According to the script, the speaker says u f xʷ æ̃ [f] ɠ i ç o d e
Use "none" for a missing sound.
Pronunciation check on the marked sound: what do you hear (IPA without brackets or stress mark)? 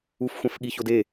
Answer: f